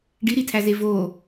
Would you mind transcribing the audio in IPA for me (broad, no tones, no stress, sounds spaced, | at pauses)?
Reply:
ɖ i ɾ i tʰ æ z e v o